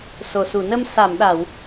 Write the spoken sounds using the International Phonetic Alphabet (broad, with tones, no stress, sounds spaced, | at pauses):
s o˨˩ s u˨˩˨ n ə˧ m s a˨˩˨ m ɗ a˨˩˨ w